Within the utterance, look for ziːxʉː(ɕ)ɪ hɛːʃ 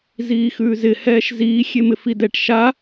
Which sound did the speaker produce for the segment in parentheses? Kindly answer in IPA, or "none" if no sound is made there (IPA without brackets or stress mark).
z